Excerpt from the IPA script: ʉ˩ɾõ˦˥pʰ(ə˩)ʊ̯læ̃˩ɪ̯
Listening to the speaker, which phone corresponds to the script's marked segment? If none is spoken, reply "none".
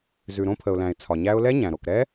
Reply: ə˩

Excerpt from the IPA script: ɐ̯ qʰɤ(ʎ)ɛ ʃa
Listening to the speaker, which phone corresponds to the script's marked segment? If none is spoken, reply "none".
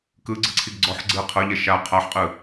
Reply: ʎ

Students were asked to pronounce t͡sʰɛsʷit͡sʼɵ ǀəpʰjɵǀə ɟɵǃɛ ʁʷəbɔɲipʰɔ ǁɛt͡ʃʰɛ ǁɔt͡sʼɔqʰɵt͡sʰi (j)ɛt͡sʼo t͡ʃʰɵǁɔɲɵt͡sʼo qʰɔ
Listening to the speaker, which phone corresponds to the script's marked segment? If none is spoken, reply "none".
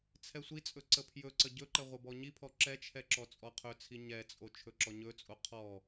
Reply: ɲ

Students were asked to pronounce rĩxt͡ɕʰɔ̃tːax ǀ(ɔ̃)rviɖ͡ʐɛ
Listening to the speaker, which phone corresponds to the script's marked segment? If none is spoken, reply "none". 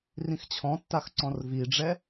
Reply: ɔ̃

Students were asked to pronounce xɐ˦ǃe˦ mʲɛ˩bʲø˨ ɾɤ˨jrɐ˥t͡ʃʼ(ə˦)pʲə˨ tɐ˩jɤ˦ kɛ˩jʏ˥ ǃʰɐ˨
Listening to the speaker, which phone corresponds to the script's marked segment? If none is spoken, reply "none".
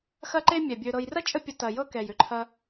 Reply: ə˦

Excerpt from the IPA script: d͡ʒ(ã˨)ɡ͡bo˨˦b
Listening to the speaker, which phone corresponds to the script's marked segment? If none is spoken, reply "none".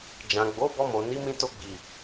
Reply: ã˨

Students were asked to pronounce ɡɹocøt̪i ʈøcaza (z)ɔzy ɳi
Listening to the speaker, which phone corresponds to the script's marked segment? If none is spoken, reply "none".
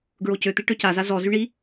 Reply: z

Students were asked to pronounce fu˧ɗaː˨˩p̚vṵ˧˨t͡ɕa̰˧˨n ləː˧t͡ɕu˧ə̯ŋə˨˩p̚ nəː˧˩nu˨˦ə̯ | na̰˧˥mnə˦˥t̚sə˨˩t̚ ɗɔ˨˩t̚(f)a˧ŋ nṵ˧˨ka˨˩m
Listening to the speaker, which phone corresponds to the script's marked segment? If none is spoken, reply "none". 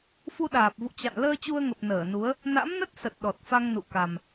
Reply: f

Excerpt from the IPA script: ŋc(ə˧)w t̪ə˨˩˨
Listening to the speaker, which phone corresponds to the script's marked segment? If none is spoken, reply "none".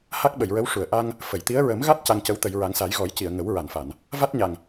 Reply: ə˧˥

